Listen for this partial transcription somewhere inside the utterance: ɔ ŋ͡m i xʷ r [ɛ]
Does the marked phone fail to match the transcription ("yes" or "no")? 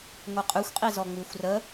yes